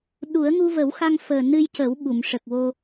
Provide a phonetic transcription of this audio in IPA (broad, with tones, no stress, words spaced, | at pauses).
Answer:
ɗu˨˩˦ə̯ ŋu˧və˨˩˦wxa˧ŋ fəː˨˩nɨ˧j cə˨˩˦w ɓu˨˩˨mʂə˨˩k̚wo˧